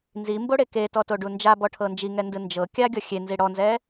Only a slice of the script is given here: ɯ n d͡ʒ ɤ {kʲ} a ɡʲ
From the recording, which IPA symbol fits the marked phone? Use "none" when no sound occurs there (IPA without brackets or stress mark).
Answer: kʲ